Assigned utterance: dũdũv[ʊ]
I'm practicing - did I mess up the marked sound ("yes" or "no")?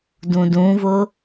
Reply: no